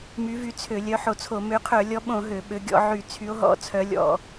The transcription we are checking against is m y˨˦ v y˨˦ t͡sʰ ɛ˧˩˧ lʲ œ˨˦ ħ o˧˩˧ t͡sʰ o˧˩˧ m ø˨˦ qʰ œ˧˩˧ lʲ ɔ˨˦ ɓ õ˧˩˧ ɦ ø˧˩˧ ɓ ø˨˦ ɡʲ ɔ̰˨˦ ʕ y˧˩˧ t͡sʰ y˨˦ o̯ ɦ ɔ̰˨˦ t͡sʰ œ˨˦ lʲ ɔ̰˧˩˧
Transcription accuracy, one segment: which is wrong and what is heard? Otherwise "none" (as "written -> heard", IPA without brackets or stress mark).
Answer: ɛ˧˩˧ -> ø˧˩˧